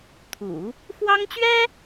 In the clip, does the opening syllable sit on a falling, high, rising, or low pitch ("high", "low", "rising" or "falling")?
low